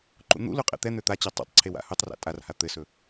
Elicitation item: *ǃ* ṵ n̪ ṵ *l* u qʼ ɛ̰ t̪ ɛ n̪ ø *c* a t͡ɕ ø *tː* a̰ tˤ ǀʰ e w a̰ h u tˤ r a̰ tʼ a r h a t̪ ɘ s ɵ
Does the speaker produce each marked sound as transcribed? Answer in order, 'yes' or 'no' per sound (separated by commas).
yes, yes, no, no